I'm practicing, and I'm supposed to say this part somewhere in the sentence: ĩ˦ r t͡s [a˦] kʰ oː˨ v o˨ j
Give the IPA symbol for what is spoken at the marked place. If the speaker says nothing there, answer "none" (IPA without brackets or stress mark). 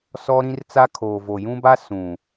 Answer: a˦